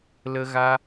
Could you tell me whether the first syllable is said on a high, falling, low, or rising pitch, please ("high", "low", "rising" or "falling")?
high